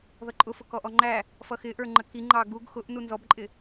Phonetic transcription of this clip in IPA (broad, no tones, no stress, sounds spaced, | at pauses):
ð ʌ ǃʼ ʊ f ʊ k ɔ ʔ ɔ ŋ͡ǃ æ | f ʌ x ɪ ʔ ə˞ ŋ͡ǃ ə k i ŋ͡ǃ ɑ ɡ u ɡ x ʊ ʔ n u n z ɔ b ǃʼ ɪ